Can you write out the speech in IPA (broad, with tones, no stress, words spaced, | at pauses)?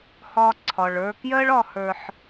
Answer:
hɒ˦ ǀʰɒ˨ɭə˞˧kjɜ˦ɭɒ˧ hə˞˧ħ